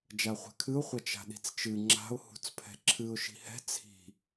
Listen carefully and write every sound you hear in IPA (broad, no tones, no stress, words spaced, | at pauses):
d͡ʒaχʷɛ̤kʰɨʊ̯ χʷɐt͡ʃa̤ɗi̤t͡st͡ʃɨ ŋ͡ǁa̤ʊ̯ hṳt͡spʰɛ̤ǁʰɨʊ̯ ʃi̤hɛ̤ t͡sʰi̤